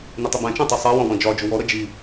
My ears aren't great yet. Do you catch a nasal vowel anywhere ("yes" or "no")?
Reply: yes